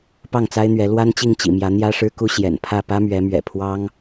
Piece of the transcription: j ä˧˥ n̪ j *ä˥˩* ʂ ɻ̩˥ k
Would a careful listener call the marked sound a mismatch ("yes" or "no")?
yes